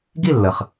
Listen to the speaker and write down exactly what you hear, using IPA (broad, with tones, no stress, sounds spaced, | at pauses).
ɡ i˥˩ lː ə˩ χ